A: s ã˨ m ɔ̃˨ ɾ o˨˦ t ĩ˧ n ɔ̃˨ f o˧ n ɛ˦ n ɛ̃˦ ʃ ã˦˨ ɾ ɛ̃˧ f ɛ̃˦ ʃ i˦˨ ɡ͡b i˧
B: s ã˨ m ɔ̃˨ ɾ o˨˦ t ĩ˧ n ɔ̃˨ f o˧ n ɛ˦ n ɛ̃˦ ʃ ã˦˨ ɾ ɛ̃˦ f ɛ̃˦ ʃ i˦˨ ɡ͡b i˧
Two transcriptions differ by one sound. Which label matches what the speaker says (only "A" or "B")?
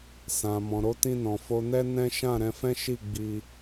A